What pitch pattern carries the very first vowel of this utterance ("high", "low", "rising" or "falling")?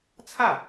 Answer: falling